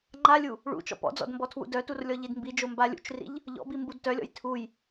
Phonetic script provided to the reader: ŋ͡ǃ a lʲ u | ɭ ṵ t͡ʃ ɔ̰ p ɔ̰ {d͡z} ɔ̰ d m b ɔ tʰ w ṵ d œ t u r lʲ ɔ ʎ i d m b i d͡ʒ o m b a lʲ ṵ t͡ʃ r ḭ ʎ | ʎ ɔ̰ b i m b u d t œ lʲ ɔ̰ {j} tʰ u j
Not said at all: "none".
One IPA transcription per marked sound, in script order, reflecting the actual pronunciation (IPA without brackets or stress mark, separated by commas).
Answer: d͡z, j